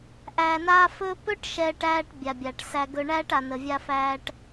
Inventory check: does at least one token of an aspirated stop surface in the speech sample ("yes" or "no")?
no